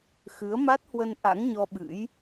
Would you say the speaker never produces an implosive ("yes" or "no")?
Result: no